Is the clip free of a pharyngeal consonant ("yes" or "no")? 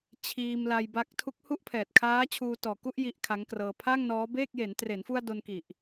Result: yes